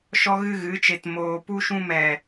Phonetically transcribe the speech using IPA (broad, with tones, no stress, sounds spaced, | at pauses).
ʃ ɔ˦ ɣ ɨ˦ ɣ ɨ˨˦ t͡ʃ e˧ t m oː˧ p u˦ ʃ ũ˦ m ɛ˨